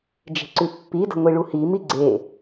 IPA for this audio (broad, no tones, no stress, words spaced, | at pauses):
d͡ʒe̤ǀʉpːidə̤ ŋʷiɭuhimi ɡ͡ǀe